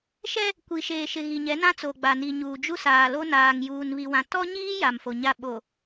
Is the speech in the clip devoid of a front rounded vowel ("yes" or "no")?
yes